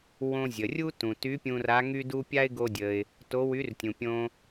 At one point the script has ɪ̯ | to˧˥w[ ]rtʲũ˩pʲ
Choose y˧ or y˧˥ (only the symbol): y˧˥